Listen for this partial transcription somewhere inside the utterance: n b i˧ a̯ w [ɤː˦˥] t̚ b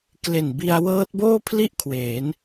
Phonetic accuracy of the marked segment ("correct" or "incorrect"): correct